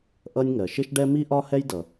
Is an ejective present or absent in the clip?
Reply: absent